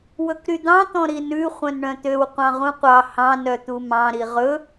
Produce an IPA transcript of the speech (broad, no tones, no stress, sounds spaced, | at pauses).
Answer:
w ɵ k ɾ y d̪ ɑ̃ t̪ ɔ̃ ɾ i n ʉ χʷ œ̃ n ɳ œ̃ t̪ ø w qʷ ɑ̃ ʁ ũ qʷ ɑ h ɑ̃ n œ t̪ u m ɑ̃ ɾ i ʁ ɵ